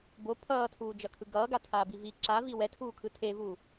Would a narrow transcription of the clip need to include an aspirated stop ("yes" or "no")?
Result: yes